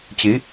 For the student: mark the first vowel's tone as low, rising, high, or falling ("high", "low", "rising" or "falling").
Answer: rising